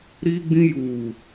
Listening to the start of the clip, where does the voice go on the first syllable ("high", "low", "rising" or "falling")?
high